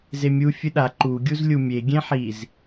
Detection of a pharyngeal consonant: present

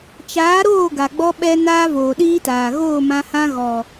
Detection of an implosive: present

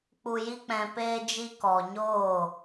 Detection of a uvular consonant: absent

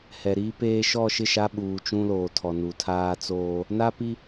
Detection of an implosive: present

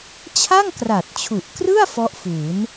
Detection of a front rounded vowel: absent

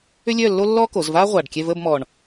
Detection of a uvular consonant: present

